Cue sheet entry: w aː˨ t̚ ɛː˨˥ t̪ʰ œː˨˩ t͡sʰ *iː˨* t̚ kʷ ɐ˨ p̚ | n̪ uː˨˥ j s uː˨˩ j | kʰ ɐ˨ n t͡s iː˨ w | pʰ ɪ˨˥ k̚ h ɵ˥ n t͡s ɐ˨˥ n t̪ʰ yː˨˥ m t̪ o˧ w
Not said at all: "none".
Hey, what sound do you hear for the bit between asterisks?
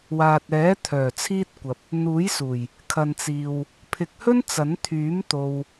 iː˥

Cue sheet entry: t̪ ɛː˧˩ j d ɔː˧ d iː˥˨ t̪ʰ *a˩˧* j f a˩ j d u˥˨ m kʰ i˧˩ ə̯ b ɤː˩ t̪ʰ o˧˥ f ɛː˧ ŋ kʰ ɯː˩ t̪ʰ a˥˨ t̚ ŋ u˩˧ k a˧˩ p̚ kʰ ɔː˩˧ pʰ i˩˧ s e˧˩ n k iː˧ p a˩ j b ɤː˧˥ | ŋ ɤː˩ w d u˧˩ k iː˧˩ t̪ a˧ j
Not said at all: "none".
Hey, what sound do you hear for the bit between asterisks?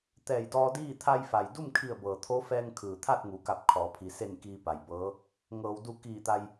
a˧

